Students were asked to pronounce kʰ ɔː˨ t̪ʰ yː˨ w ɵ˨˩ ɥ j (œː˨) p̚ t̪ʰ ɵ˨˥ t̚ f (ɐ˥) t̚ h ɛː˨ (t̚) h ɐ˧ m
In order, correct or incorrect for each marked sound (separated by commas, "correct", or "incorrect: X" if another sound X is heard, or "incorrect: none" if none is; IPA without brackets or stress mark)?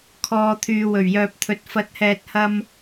correct, incorrect: ɐ˨˥, correct